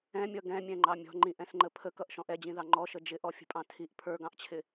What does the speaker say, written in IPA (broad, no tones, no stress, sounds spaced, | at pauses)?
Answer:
ɛ̃ mʲ ʌ ɡ ɛ̃ mʲ ɛ̃ ŋ͡ǃ ɑ mʲ ɔ̤ ŋ͡ǃ ĩ ʔ ɛ̃ s ŋ͡ǃ ə pʰ ə k ʌ ʔ ʃ ɔ̃ ʔ ɛ d͡ʑ ĩ ð ɑ ŋ͡ǃ ɔ ʃ ə d͡ʒ ɪ ʔ ɔ fʲ ə̤ pʼ ɑ̃ tʰ i ʔ pʰ ə˞ ɡ ɑ̃ ʔ t͡ɕʰ ɪ